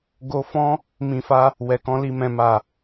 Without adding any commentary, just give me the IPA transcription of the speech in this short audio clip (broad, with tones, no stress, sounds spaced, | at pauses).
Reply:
ɡ o˧ f ɔ̃˦ | m ĩ˨ f a˧ | w ɛ˨ k ɔ̃˧ l i˨ m ɛ̃˨ m a˨